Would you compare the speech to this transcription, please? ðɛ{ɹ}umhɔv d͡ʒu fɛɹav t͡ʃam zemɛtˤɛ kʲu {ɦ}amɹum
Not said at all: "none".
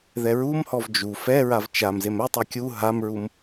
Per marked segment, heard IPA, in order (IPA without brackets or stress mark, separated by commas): ɹ, ɦ